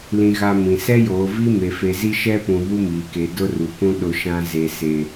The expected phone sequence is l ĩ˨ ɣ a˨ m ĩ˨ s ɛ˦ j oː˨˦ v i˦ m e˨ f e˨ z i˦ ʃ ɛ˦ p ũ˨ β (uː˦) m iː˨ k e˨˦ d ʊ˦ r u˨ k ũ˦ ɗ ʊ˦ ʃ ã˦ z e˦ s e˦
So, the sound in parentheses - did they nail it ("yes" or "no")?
no